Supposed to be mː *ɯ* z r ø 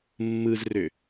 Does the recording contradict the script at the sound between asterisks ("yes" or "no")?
no